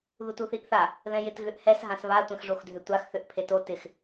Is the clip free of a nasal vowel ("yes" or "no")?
no